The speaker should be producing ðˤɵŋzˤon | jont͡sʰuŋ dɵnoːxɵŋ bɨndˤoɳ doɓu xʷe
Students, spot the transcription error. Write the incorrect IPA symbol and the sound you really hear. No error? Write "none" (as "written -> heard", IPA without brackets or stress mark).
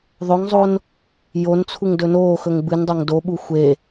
ɳ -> ŋ